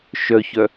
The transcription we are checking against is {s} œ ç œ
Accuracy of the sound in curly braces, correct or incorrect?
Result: incorrect